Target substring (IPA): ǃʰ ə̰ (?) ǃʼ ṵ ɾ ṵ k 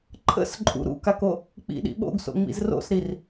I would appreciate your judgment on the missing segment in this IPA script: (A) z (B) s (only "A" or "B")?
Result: B